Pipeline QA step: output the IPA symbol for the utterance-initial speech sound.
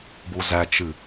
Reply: b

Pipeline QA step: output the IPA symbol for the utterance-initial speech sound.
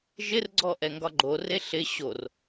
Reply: ʒ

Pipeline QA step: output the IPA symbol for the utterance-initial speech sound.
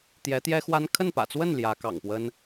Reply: t̪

